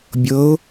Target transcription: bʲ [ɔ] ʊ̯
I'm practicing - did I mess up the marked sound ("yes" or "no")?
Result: yes